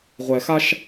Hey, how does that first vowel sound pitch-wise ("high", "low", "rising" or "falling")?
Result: low